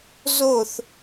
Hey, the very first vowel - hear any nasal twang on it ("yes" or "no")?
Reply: no